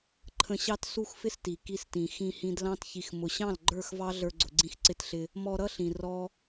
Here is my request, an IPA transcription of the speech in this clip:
ǃʰə̃˧ɕɑ˦t su˦xfɪ˦s ti˨ ki˧stĩ˨ xĩ˧hĩ˧dlɑ̃˦t çi˨xmʊ˨ɕɑ̃˦˨l ɡ͡ǃə˞˦˨xvɑ˦ɮə˞˧ ɡ͡ǀʊ˨ɡ͡ǀĩ˧xǀɪ˧tɬɪ˧ | mɔ˧ ɾʌ˦ɬĩ˨ rɔ˦

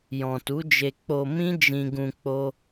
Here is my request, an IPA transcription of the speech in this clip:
jɔ̃˨tu˨˦d͡ʒe˧ k͡po˧mĩ˦ d͡ʒĩ˧ɡũ˧ k͡po˦

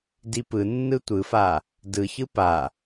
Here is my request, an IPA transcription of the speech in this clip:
dipɯ nːɯtʷɯfa | dɯçɯ pa

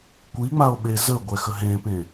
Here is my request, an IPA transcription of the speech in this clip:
kʷiŋ͡mao̯ ɓezəɡʷɛ xəɦẽpẽ

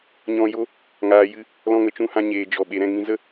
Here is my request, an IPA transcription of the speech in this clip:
ɲɔ̃˧jo˦ | ŋaː˨jɨ˧ | lɔ̃˧ŋə˨ t͡ʃũ˧hã˧ ɲeː˨ d͡ʒɔ˨ ɓe˨ɾɛ̃˦˨ ŋĩ˧zə˦

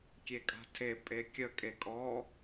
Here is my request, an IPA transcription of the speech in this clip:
kʲekʼa̤tʰe pʼekʲə kʼekʼɔ

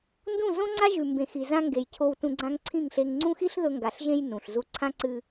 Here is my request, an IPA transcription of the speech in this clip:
ndũ˦˨zõ˦ŋ͡ǀa˦ ʒʉ˨mbẽ˨xi˨zã˧ ŋɡe˨jcʰo˧wtũ˧ɡ͡ǀã˦ŋ ǀʰĩ˦˨ŋɬe˧ŋ ŋ͡ǀũ˦xi˦ɬðɵ˧ŋɡa˨ɬ ʒẽ˧j nũ˨ɬ zu˧ ǀʰã˦ǀɨ˧

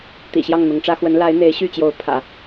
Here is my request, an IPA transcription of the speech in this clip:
t̪ḭ˨˩ɕjɑ˥˩ŋn̪ʊ˧˥ŋʈ͡ʂä˥ xwə˧˥n la˧˥ɪ̯n̪e˧˥ɪ̯ɕy˥˩t͡ɕjo˧˥ʊ̯ pʰä̰˨˩˦

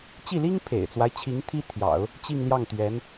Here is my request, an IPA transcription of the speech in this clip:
t͡ɕi˥˩li˥ŋ pʰḛ˨˩ɪ̯t͡swa˦ɪ̯t͡ɕʰi˧˥ŋ t̪ʰi˥t̪ʰjɑ̰˨˩˦ʊ̯ | t͡ɕi˥˧ŋljɑ˥˩ŋt̪ɥɛ˧˥n

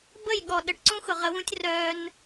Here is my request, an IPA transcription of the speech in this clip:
bə˦˨jɠɔ˨ɗə˨ʈǀũ˦ xʊ˨ʁə˨˦wũ˦tʲ rœ˦n

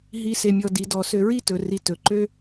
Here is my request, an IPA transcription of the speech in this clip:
ɦi˧ se˧mʲɔ˧ di˩˧dɔ˩˧ sø˧ɹi˥tɵ˩˧ ri˧tɵ˩˧ǃø˥

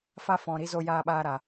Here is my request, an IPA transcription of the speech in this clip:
fa˧ fɔ̃˨ɾi˦zo˧ jaː˧ɓaː˧ɾa˨

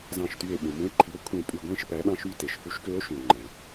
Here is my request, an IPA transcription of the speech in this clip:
zɑ̃˧˩ʃty˧˩e̯ɓũ˩ mũ˧˥e̯ǃʰi˩˥o̯ kʷʰẽ˧˩pʼy˧˩ ɡʷẽ˥˨ʃ pæ˩˥ɗɑ̃˧˥ʃy˥˨ te˩ʃfu˧˥ʃkø˧˥o̯ ʃũ˩o̯ ŋ͡ǃæ̃˩

